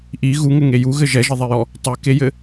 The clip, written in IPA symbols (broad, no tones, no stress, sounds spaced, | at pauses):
ʔ i ɣ u ŋ ɘ ŋ e j u ɣ ɘ ʒ ɛ ʒ ɘ ðˤ e j ɔ | tˤ ɨ k e j ɘ